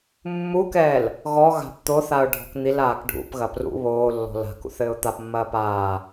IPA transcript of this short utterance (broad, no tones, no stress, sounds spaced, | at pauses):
mː u k ɛː l | ɣ ɔ ɣ a̤ p t̪ o θ a ʊ̯ ɖʱ ɔ̤ k n̪ i l aː k ɖʱ ṵ p ɣ ɐ p r ṵ β oː lː ɔ̤ l a̤ k ṵ θ ɘː ʊ̯ t̪ a p mː ɐː p aː